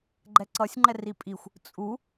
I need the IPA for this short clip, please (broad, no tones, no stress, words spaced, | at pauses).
ɡ͡ǃɛǀʌsʲŋ͡ǃɛr ipʼixʷ | t͡sʼu